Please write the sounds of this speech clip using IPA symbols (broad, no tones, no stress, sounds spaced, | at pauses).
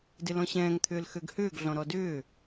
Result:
d ɪ l ɔ̃ ɕ ɛ̃ː ŋ t̪ʰ ʏː l x ø ɡ h ʏː ɡ ɮ ɔ̃ ɾ ɔ d ʏː